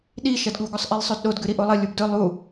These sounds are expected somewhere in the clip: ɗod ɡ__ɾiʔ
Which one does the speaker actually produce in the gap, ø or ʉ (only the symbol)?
ʉ